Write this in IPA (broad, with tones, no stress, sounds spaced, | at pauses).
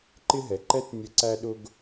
ǃ ɪ˥ ɦ ɛ˩˧ ǃ ɛ˥ t nʲ ə˧˥ ǀ æ˥ ɗ ʊ˥ ɡ